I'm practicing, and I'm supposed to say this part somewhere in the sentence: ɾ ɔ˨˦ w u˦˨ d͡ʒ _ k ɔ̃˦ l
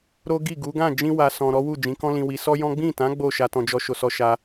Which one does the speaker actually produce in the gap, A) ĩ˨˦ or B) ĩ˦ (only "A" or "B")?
A